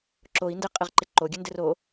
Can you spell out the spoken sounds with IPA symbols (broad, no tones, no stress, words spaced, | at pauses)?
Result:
ǁoi̯ ndɘqʼɘʁǃɪ ǃoɡʲɘndɘr o